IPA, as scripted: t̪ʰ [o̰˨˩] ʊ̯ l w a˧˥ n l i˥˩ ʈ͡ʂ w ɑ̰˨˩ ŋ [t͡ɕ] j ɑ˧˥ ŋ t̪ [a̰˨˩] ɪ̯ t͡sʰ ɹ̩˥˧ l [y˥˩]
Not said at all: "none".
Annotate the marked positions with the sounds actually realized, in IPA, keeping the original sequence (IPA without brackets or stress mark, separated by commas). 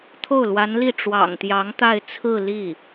o˥˩, t̪, a˥˧, i˥˩